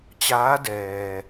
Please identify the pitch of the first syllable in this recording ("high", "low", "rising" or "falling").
rising